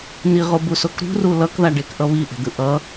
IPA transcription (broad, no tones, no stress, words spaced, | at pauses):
niʁobusok ɾṳru lʌkðaɖekʔʌ βiʔe̤d̪ɯ ʔʌ